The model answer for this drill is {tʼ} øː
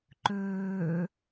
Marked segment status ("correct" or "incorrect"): incorrect